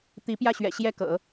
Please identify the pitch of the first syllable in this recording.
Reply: rising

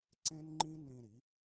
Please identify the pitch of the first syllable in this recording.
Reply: high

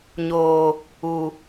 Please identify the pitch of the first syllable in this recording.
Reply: low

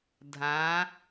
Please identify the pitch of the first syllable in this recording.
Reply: rising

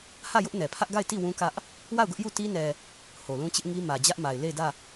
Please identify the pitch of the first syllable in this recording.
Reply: falling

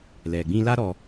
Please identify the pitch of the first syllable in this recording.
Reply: low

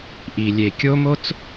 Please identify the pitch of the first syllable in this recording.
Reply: low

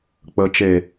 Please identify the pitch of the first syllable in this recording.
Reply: rising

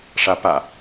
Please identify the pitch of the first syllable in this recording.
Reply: rising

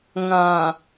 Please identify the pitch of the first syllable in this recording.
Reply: low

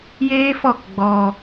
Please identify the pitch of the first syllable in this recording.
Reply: high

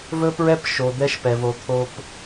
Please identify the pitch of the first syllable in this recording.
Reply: high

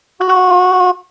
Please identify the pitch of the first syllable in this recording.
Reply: high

